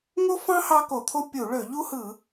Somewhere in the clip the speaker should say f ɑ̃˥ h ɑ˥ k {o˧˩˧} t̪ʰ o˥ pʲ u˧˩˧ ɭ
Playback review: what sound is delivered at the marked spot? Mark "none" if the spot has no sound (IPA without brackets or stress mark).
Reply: o˧˩˧